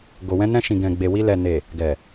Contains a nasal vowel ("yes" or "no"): yes